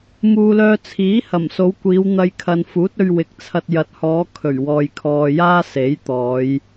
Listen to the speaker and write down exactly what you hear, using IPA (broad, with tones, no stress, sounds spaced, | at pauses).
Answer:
m uː˨ l œː˧ t͡sʰ iː˨˥ h ɐ˨˩ m s o˨˧ w kʷ iː˨˧ w n̪ ɐ˧ j kʰ ɐ˨ n f uː˨˥ t̚ ɵ˧ ɥ w ɪ˨ k̚ t͡sʰ ɐ˧ t̚ j ɐ˨ t̚ h ɔː˨˧ kʰ ɵ˨˩ ɥ w ɔː˨ j kʰ ɔː˨ j aː˥ s e˨˥ j t̪ ɔː˨˧ j